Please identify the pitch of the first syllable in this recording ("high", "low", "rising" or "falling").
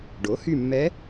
rising